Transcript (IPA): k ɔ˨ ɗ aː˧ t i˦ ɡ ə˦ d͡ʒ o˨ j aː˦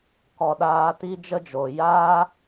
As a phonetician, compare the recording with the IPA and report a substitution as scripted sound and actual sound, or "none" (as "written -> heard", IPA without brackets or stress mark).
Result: ɡ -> d͡ʒ